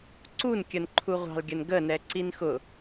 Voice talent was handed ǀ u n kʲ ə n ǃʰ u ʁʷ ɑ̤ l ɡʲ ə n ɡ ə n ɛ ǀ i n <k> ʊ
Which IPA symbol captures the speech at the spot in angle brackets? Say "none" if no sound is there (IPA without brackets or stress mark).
x